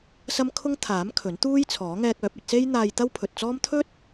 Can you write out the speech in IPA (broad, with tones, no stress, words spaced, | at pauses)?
sɐ˥mkʰʊ˥ŋ t̪ʰaː˨˥m kʰɵ˨˥nt̪uː˥jt͡sʰɔː˨˥ ŋɛː˧k̚œː˨˥p̚ɐ˧t̚se˥j n̪aː˧jt̪ɐ˥wpʰɵ˨t̚t͡sɔː˥m t̪ʰɵ˥t̚